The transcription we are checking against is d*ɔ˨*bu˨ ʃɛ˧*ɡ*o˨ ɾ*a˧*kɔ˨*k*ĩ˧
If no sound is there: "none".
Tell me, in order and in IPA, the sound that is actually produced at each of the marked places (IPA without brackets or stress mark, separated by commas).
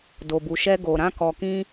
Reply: o˨, ɡ, ã˧, k